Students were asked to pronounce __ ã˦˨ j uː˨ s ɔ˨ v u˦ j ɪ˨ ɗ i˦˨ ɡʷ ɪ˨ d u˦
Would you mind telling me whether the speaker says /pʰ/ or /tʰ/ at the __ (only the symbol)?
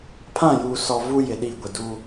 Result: pʰ